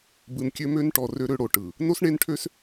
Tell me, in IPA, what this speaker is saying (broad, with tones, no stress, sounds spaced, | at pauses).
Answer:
b ɯ˨ n kʲ ø˦ m ø˦ n ʈ ɔ˨ r ø˦ ɾ ø˦ ɽ o˨ ʈ ɯ˨ | n o˦ s ɳ e˦ n ʈʰ ø˦ s